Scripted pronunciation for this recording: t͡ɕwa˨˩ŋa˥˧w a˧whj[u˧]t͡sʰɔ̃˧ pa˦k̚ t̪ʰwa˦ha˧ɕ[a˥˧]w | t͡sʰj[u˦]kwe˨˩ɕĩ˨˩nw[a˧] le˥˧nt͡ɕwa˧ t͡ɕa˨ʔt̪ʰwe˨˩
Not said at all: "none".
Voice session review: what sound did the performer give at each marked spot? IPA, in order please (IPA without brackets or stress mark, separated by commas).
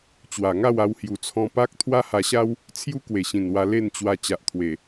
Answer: u˨˩, a˦, u˦, a˧